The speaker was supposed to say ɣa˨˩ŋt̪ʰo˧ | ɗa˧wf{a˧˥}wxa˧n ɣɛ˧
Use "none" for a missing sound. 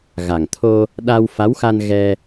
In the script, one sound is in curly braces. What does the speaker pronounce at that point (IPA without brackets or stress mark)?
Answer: a˧˥